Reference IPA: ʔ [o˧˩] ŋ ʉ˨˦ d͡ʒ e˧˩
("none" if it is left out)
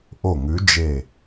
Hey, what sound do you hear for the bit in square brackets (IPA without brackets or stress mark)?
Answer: o˧˩